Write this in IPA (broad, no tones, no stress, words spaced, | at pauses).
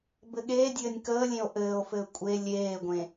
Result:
bɘɠeːdʲɘːnʲ kəːlʲẽo̯ ʔɘːo̯fɘː kʷʼe lʲeːɡʷẽ